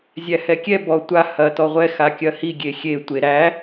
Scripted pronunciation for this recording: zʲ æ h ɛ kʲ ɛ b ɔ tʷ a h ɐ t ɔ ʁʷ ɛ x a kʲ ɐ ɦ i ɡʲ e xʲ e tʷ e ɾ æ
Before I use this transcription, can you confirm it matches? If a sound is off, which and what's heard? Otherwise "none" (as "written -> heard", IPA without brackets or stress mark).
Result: ɦ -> h